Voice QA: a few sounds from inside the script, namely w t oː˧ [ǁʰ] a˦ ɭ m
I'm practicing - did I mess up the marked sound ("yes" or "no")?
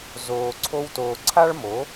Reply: yes